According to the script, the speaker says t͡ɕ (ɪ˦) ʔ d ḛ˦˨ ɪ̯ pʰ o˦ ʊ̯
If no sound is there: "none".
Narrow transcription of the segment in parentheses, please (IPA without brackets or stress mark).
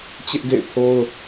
ɪ˦